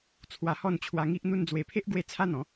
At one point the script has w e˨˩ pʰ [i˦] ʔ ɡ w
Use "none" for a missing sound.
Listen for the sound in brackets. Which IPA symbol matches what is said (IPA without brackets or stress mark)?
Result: e˦